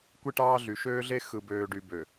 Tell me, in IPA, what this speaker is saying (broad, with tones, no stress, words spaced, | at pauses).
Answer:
kʷi˦ʈɑː˦ɮy˨ ʃøː˦ɮe˦ xɯ˨ bøː˨ɖy˨ bø˨